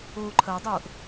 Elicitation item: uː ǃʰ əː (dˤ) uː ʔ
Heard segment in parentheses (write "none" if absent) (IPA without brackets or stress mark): dˤ